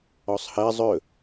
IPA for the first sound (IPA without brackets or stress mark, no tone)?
ɔ